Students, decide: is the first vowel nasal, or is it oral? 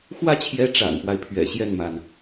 oral